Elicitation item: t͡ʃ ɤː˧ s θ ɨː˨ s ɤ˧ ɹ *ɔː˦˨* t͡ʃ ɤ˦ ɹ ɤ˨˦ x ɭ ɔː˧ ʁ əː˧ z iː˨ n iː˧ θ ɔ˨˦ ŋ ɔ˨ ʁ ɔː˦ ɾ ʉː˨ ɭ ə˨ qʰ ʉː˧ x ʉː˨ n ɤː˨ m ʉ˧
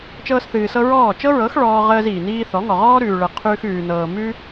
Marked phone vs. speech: correct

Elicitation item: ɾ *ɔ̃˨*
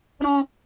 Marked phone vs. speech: correct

